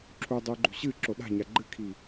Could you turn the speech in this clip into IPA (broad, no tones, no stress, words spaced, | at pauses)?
ǁʰu dˤʉːɡ͡ǃṳɕɨ ǁoɗa̤ɲa ɡ͡ǃɨkʰiː